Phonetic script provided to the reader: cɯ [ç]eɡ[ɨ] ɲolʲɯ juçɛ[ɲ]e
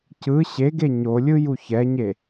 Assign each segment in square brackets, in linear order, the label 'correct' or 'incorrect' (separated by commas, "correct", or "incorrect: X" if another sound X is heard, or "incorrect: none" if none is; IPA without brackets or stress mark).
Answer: incorrect: ɕ, incorrect: e, correct